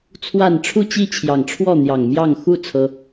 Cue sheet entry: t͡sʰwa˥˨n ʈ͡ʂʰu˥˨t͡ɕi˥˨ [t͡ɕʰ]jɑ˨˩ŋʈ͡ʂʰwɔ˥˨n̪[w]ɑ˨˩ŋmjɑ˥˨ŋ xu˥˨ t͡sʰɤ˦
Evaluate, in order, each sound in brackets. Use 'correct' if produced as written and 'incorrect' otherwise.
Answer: correct, incorrect: j

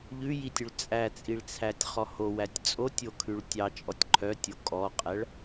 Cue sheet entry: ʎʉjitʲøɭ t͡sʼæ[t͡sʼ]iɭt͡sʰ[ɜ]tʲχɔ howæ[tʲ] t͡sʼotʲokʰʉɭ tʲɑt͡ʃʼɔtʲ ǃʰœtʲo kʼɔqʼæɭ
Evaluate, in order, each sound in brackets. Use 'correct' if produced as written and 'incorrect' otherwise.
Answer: correct, incorrect: æ, correct

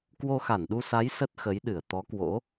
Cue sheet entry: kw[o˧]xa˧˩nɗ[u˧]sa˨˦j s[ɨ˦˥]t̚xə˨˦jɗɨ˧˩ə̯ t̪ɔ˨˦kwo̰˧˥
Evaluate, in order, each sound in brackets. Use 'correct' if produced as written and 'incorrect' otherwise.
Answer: correct, correct, incorrect: ə˦˥

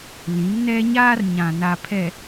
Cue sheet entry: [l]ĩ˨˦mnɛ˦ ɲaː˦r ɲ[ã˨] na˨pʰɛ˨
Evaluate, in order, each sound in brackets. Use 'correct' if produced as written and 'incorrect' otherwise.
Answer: correct, correct

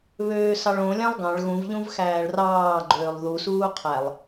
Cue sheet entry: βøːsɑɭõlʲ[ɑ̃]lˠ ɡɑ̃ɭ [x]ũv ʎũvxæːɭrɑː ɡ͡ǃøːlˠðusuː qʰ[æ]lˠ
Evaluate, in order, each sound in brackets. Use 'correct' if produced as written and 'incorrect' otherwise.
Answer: correct, incorrect: ɣ, correct

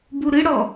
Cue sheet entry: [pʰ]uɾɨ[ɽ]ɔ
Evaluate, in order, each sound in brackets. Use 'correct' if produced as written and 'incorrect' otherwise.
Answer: incorrect: b, correct

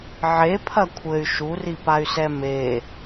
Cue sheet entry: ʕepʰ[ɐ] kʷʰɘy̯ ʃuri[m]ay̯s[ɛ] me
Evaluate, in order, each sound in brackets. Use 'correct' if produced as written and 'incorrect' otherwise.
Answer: correct, incorrect: p, correct

